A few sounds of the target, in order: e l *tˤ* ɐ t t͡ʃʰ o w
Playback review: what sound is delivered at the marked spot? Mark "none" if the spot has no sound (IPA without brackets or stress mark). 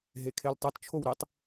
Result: tˤ